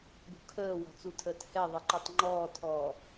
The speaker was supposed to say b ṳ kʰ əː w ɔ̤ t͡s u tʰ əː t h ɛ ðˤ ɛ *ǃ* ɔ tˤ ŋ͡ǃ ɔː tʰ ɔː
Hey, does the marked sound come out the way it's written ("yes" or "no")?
yes